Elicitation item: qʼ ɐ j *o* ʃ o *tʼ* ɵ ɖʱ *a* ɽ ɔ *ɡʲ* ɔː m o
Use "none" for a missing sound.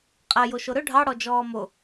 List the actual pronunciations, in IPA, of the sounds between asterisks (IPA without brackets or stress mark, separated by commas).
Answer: o, ɾ, ɑ, d͡ʒ